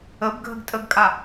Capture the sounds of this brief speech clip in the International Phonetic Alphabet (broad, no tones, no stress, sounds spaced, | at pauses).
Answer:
ə b ɡʱ ə ɡ tʼ ə ɡ kʼ a